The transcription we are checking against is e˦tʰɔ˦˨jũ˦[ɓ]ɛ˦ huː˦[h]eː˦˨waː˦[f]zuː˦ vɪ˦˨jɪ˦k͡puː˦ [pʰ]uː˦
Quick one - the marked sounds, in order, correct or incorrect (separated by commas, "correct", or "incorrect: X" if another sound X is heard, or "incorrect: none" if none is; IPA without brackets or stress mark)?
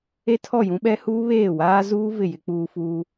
correct, incorrect: β, incorrect: none, incorrect: f